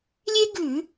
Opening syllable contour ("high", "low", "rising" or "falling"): high